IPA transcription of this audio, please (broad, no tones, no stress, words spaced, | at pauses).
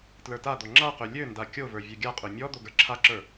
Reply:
tlə˞tad̪ɔ ŋ͡ǁaqø lʲønda kʲovə˞ vʲøɡʲaqʼø mʲɔ d̪oɡə˞ǁʰaǁə˞